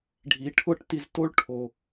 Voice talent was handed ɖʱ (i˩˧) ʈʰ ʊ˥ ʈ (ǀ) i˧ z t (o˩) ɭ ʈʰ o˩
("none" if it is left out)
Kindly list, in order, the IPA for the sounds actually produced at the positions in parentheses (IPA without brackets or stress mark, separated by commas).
i˩˧, t, o˥